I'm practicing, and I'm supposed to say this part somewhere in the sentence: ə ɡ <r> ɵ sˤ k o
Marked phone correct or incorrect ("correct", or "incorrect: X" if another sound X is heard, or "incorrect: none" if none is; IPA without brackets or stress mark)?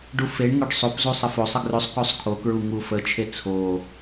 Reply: correct